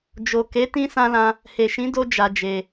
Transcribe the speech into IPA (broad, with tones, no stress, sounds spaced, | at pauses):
d͡ʒ o˨ k e˨˦ t ĩ˧ s ã˧ l ã˧ | h e˨ ʃ ĩ˨˦ d o˧ d͡ʒ a˧ d͡ʒ e˧